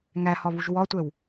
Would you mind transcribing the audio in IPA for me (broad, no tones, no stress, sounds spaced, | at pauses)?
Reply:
ŋ æ h ɒ β u ʒ w ɒ tʷ ɛ w